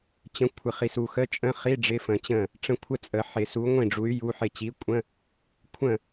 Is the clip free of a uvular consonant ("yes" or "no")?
no